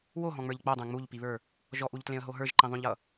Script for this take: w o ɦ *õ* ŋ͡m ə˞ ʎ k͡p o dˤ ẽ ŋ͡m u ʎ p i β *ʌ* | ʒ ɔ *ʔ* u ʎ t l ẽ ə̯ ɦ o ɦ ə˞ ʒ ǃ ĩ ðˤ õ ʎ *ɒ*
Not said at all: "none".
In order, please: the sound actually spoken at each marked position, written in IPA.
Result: ɔ̃, ə˞, ʔ, ʌ

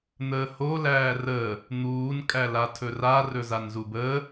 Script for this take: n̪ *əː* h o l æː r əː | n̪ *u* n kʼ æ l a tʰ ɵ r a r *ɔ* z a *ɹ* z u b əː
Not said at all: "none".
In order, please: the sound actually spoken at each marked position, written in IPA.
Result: əː, uː, ɵ, n

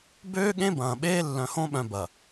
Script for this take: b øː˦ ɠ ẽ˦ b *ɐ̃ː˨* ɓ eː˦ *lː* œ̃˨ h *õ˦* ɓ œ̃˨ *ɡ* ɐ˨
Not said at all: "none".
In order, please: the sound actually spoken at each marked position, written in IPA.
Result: ɐ̃ː˨, lː, õ˦, b

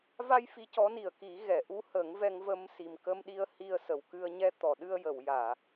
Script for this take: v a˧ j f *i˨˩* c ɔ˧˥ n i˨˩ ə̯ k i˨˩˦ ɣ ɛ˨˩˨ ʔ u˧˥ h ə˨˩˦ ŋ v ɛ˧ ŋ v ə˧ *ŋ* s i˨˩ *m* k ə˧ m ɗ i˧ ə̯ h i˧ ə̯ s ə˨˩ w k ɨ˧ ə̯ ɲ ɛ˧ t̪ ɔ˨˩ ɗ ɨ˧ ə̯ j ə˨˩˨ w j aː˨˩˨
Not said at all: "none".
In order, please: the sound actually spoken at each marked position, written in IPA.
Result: i˧˥, m, m

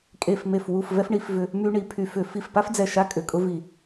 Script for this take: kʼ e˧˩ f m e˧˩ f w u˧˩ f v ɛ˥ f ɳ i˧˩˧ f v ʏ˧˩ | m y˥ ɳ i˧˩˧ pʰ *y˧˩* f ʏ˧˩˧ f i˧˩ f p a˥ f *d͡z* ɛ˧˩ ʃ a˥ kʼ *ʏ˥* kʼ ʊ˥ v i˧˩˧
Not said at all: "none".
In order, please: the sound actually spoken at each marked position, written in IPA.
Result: y˧˩, d͡z, ʏ˧˩

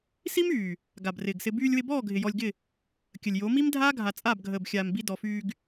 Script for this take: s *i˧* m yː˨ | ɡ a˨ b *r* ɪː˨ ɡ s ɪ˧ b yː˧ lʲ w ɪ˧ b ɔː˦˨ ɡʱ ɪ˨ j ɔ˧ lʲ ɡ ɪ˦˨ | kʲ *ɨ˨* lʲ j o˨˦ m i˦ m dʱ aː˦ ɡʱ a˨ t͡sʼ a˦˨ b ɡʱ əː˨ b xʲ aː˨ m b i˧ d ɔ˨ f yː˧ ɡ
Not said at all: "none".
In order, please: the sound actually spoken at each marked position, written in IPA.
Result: i˦, r, ə˨

